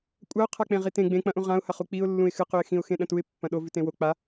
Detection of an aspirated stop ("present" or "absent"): present